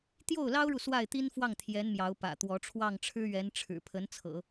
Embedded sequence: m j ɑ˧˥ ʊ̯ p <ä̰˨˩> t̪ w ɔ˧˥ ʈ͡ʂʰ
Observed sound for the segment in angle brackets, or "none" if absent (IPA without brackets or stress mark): ä̰˨˩